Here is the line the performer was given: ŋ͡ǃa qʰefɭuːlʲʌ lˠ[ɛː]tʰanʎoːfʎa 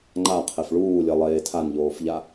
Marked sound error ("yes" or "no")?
yes